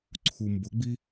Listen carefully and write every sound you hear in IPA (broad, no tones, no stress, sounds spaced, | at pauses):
ǀʰ u m b ʊ ɡ͡b i